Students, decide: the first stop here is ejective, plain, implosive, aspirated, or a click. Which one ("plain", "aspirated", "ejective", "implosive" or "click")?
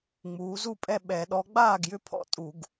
ejective